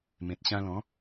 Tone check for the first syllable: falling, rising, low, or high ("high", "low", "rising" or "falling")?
low